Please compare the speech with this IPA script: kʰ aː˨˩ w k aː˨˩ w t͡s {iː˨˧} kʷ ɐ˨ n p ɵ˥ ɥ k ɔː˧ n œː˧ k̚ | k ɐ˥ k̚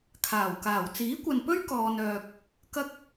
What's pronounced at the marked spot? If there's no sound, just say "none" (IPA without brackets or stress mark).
iː˨˥